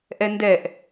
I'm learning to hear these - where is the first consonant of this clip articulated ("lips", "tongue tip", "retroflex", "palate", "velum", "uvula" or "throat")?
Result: throat